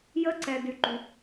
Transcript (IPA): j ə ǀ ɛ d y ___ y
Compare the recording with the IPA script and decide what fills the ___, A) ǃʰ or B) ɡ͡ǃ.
B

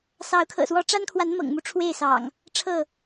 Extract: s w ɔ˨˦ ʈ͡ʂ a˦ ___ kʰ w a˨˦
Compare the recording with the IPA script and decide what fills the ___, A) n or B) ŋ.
A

